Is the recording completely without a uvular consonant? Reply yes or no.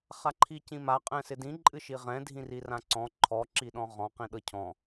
no